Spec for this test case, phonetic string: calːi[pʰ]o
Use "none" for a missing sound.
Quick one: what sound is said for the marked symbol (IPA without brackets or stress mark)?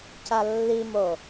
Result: m